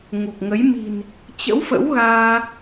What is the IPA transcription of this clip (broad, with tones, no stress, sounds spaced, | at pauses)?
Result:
ŋ u˨˩ k̚ ŋ ə˨˦ j m i̤˨˩ n | t͡ɕ ə̰˧˥ w f ə̰˧˥ w ɣ aː˧